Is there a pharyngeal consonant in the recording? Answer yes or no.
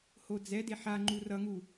yes